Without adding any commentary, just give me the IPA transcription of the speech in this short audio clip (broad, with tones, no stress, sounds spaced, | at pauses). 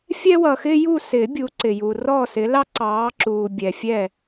fʲ ɛ˦ w ʌ˨ x ɪː˦ j u˦˨ s ɪː˨˩˦ bʲ u˨˦ ǀ ɪ˨ j uː˨ r ɔː˦˨ s ɪ˨˦ l ɑ˦ ǀ ɑː˨˦ ǁ uː˨ bʲ ɛ˨ fʲ ɛ˦˨